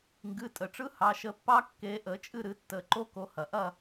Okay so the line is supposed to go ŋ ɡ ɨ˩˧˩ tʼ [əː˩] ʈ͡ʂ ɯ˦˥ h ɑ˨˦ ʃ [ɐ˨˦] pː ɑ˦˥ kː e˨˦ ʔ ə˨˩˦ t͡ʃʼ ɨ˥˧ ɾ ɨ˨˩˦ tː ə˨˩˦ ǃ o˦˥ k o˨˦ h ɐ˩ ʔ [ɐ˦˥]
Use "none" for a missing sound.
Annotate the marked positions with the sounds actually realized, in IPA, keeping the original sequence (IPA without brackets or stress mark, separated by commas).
ə˩, ə˨˦, ɐ˥˧